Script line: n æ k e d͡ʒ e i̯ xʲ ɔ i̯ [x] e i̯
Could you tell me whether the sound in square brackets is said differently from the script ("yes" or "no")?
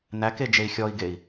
yes